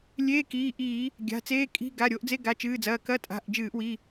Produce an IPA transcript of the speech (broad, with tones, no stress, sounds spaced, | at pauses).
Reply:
lʲ eː˧˥˧ k iː˩˧˩ ʔ iː˧˩˧ | ɡʲ a̤˩˧˩ t͡s eː˧˥˧ kʼ i̤˧˥˧ ɡ a˩˧˩ ɾʲ o˧˩˧ ʔ d͡z e˧˥˧ ɡ a˩˧˩ t͡ʃ ɨː˩˧˩ d͡z ɐː˩˧˩ k ɐ˧˥˧ tʼ a̤˩˧˩ ʔ d͡ʒ ɨː˧˩˧ ʔ w i˩˧˩